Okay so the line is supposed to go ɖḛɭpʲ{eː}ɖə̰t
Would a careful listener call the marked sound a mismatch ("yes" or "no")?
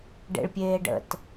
no